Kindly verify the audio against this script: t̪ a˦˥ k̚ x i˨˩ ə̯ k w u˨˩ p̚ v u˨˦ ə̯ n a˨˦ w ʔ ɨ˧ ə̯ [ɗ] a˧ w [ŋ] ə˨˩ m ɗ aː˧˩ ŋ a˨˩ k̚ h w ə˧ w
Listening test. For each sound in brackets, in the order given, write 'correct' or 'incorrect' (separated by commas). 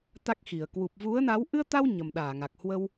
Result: incorrect, incorrect